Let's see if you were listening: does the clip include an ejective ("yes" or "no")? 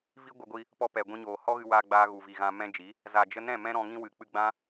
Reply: no